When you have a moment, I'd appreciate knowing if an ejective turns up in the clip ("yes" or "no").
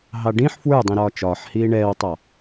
no